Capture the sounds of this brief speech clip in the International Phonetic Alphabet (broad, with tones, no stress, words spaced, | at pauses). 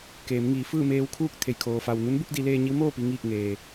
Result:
keː˩˧mŋiː˩˧ fɯː˥˨meː˧wkʰuː˥˨k̚ t̪ʰe˩jkʰoː˩ fa˩wnu˧˥nbu˧k̚ di˩˧leː˧ ɲi˧˥wmoː˥˨pi˧ ŋiː˥˨k̚ŋeː˩